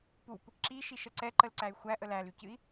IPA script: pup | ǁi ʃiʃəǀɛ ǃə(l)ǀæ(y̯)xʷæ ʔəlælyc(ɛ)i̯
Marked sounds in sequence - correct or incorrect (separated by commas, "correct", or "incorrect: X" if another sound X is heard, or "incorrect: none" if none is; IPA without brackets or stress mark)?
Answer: correct, correct, incorrect: ɨ